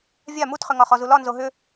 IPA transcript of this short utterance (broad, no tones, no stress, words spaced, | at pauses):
vʲa mutχʏŋɒ χɔzulɒ nzoɦʏ